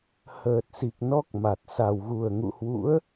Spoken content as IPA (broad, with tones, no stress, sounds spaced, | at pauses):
h əː˨˩ t̚ s i˨˩ k̚ n ɔ˦˥ k̚ m a˨˩ t̚ s a˨˩ w ɣ u˨˩ ə̯ ŋ ṵ˧˨ h w ṵ˧˥ ə̯